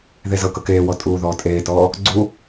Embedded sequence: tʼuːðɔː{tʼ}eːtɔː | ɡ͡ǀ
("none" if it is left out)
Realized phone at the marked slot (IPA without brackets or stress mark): tʼ